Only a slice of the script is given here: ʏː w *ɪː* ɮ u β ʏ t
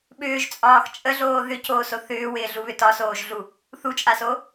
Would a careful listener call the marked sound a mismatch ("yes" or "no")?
no